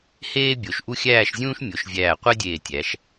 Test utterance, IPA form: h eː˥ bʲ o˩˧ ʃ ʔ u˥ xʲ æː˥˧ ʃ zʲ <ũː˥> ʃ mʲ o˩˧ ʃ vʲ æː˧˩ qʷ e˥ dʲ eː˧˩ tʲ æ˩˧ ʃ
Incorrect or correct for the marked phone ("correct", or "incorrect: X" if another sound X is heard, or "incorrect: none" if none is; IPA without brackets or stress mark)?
correct